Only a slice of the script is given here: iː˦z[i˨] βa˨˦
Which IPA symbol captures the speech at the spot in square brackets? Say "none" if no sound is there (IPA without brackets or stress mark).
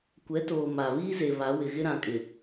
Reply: e˨